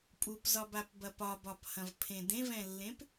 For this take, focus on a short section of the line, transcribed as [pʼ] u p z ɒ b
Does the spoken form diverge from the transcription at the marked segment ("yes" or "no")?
no